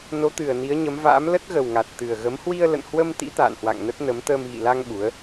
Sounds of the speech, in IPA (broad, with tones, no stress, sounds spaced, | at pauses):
n o˨˦ t̪ ɨ˨˩ ə̯ n i˨˦ ə̯ ɲ ə˨˦ m v a̰ː˧˥ m l ə˦˥ t̚ ɣ ə˨˩ w ŋ a˨˩ t̚ t̪ ɨ˨˩ ə̯ ɣ ə˨˦ m h w i˧ ə̯ l ə̰˧˨ n h w ə˧ m t̪ ḭ˧˥ t̪ a̰ː˧˨ n h w a̰˧˨ ŋ n ə˦˥ t̚ n ə˨˦ m t̪ əː˧ m ɣ ḭ˧˨ l a˧ ŋ ɓ u˨˦ ə̯